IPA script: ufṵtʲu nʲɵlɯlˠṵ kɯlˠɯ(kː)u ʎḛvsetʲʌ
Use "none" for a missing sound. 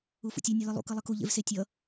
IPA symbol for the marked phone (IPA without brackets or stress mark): k